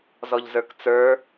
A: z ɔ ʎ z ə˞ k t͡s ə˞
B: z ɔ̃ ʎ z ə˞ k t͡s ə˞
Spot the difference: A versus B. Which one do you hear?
A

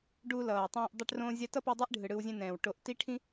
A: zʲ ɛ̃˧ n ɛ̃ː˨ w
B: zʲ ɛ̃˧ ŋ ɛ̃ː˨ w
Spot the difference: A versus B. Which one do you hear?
A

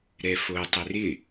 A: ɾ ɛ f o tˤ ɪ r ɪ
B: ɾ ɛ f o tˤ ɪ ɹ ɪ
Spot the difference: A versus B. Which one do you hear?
A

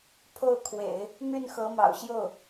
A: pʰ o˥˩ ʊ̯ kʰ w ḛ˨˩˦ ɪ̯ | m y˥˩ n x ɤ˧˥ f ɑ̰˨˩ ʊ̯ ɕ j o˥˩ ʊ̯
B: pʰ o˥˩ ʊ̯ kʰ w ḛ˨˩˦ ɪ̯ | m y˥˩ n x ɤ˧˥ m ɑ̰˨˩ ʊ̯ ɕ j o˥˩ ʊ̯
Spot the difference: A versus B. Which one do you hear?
B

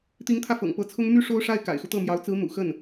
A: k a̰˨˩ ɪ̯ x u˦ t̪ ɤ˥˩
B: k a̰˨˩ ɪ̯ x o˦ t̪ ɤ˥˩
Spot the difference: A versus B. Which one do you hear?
A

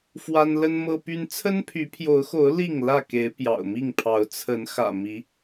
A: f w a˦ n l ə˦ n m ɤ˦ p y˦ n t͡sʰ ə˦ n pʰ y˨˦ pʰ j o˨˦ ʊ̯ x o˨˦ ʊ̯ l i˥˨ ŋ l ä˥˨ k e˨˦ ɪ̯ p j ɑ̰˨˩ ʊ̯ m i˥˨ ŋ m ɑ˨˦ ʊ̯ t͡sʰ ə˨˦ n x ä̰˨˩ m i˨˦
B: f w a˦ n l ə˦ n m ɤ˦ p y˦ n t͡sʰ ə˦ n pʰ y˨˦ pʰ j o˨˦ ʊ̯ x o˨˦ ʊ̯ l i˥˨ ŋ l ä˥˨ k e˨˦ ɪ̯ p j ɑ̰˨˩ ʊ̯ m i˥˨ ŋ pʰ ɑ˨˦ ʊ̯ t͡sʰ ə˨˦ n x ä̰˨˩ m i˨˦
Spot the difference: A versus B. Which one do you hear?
B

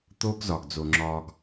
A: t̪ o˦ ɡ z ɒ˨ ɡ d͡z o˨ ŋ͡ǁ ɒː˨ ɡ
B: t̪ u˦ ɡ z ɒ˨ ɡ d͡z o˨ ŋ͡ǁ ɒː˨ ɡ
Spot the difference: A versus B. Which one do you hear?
A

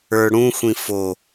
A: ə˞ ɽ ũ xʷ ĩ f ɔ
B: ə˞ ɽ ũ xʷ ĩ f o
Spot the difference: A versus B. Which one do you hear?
B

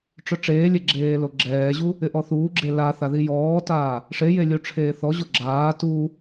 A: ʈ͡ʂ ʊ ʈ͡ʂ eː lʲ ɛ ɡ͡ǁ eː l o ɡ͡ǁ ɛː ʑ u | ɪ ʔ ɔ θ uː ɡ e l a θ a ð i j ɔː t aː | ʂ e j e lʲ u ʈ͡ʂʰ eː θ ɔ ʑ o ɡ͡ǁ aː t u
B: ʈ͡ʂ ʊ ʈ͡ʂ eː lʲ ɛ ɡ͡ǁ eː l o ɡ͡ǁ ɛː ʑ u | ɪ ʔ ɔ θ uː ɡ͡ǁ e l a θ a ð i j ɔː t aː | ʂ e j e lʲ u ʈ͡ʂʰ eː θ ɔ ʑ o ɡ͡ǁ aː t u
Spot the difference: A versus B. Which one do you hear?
B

